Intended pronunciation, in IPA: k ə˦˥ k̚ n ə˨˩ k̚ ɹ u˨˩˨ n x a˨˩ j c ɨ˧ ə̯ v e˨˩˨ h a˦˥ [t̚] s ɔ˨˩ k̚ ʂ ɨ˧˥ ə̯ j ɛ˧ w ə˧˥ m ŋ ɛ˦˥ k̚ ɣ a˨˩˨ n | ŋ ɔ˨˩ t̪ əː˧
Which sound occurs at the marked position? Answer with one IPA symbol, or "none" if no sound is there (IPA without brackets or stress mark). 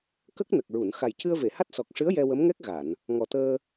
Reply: t̚